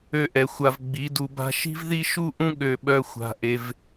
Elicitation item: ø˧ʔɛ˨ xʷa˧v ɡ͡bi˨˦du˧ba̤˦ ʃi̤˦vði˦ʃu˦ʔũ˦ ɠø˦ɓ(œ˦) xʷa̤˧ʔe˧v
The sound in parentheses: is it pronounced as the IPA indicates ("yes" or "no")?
yes